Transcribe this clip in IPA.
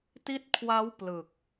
t i˦˥ t̚ kʰ w a˦˥ w p l ɯ˨˩ k̚

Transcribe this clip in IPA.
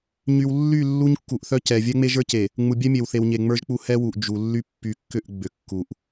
ɲ y˨ w lː y˦˨ lː u˦ ɲ kː u˨ ʔ θ œ˦ c ɛ˨ vʲ ɛ˦ ŋ͡m e˦ ʒ ə˞˦ c e˨ | ŋ͡m u˨ bʲ ɛ˦ mʲ e˨ w θ e˨ w ɲ e˨ ŋ͡m ə˞˦ ʒ k͡p u˦ h ɛ˦ w u˨ ʔ d͡ʒ u˨ lː y˦ pː y˨ kː ʏ˦˨ ʔ ɡ͡b ʏ˨ kː u˨ ʔ

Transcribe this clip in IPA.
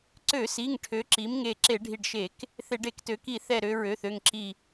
ǀ ø˧˩˧ s i˩˧˩ ŋ ʈʰ ø˩˥ ǁ i˩˥ m ŋ e˧˩ ǁ e˧˩˧ ɖʱ i˧˩ ɖ ʃ e˧˩˧ k | θ e˧˩˧ ɖ e˧˩˧ k t ø˩˥ k i˧˩˧ θ ɛ˧˩ ɾ ø˩˧˩ ɹ ø˩˧˩ θ ø˧˩ ŋ ǁ i˧˩

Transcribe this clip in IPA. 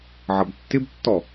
ʕ ʌ b tː ɪ b tː ɔ

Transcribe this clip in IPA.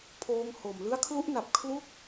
pʰ oː˧ ŋ h o˨˩ m l ɯ˦˥ a̯ kʰ l u˦˥ ʔ n a˨˩ p̚ kʰ l u˥˩ k̚

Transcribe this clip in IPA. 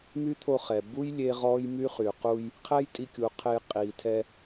m y˦ t̪ʰ o˧ χ ɛ˨ b u˦ j lʲ e˦ ʁ ɔː˦ j m y˦ χ y˨ q u˧ j | qʰ ɛ˦ j tʼ i˧ kʲ u˨ qʰ e˧ j qʼ iː˨ tʰ ɛ˧

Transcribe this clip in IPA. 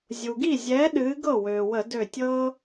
zʲ u˩ ɡ i˥˩ zʲ ɛ˨˥ ɗ ɨː˨˥ ɡ ɤ˥˩ w øː˩ w ə˧˩˧ d ø˧˩ tʲ ɤ˦

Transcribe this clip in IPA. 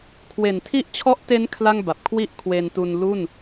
kʰ w e˨˩ n tʰ i˦˥ ʔ t͡ɕʰ ɔ˦˥ ʔ t e˦˥ n kʰ l a˥˩ ŋ b a˨˩ p̚ kʰ w i˦˥ ʔ kʰ w e˧ n t u˧ n l u˥˩ n

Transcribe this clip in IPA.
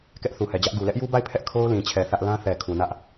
k ɛ˦ ʔ θ u˨ h ɛ˨ d͡ʑ ä˦ ʔ ɡ u˨ l ɛ˦ ʔ j u˦ b a˦˨ ɪ̯ pʰ ɛ˦ ʔ kʰ o˦ ʊ̯ l ĩ˨ t͡ɕʰ ɛ˨ θ ä˦ ʔ l ã˦ θ ɛ˨ kʰ u˨ n ä˦ ʔ

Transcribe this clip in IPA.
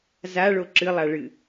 z a ɭ o ǁ ɨ lˠ a ɭ ɨ

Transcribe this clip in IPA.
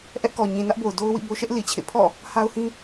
ʔ ɛ˦ ʔ k ɔ˨ ɲ ĩ˨ n ä˦ ʔ b o˨ ʊ̯ d o˦ ʊ̯ w ḭ˦˨ b o˦ ʃ ɛ˦ ʔ l i˨ t͡ɕʰ ḛ˦˨ pʰ ɔ̰˦˨ | h a˦ ʊ̯ h ĩ˦

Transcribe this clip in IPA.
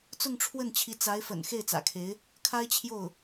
t͡s ʊ˥˧ ŋ ʈ͡ʂʰ w ə˥˩ n t͡ɕʰ i˧˥ t͡s a˧˥ ɪ̯ f ə̰˨˩ n x e˥˩ ɪ̯ t͡s ä̰˨˩ kʰ e˧˥ ɪ̯ | kʰ a˥ ɪ̯ t͡ɕʰ j o˥˩ ʊ̯

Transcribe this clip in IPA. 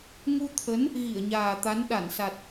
ŋ u˧ t̪ʰ ə˨˦ n | ɣ i˧˩ ə̯ ɲ aː˨˩ t̪ a˨˦ n ɗ a˧˩ n s a˨˩ t̚

